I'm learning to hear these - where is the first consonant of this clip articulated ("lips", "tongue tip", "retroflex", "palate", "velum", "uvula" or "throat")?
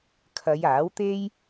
velum